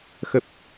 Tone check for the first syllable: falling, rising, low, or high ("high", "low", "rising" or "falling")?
low